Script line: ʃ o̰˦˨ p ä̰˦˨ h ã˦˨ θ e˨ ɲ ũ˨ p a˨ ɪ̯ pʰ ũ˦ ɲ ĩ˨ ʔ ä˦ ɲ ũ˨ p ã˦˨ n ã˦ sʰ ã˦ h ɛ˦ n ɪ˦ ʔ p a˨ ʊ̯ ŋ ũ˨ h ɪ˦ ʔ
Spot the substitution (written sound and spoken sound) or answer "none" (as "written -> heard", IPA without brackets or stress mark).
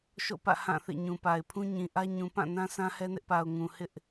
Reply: e˨ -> ḛ˦˨